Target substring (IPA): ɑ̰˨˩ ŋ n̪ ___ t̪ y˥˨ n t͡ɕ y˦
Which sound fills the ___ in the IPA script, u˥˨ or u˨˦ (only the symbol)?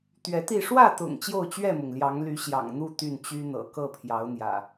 u˥˨